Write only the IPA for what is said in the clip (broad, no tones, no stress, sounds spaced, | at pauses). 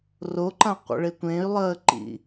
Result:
r o ǃ ã qʷ ə̰ ɭ e tʷ ẽ y̯ lˠ əː ǃ ḭ